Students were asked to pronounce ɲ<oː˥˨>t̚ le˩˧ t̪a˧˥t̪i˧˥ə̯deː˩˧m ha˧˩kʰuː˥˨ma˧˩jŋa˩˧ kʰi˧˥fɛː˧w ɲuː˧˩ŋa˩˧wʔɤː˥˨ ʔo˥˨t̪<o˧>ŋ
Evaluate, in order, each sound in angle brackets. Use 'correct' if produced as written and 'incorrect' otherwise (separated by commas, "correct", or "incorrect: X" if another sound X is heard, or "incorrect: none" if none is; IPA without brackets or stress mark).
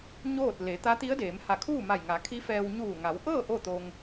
correct, correct